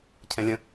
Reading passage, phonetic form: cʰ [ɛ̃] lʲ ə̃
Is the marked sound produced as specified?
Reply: yes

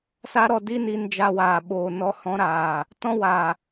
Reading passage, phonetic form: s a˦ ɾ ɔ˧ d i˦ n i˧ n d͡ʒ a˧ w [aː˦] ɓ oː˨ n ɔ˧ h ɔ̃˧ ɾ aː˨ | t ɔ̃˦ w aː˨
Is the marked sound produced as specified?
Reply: no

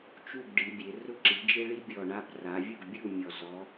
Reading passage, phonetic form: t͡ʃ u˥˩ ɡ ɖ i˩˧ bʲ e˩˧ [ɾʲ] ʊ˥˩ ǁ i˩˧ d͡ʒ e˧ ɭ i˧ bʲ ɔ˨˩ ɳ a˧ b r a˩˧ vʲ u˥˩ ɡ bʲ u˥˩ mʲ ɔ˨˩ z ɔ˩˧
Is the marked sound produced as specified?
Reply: no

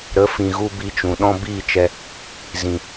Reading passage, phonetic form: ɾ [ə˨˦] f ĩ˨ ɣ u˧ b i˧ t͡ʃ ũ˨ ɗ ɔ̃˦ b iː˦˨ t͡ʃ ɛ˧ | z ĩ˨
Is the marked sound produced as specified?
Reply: yes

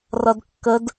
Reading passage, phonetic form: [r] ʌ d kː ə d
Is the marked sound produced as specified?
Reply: yes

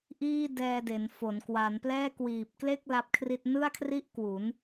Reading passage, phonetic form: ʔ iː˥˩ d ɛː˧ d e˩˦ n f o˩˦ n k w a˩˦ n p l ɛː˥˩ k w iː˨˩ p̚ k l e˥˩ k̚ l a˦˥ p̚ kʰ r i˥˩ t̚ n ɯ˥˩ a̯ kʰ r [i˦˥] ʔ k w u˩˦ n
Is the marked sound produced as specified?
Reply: no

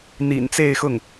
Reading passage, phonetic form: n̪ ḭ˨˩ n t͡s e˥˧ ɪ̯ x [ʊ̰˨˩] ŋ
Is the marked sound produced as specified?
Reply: no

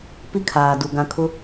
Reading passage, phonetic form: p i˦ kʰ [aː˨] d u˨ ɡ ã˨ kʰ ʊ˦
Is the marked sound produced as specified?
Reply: yes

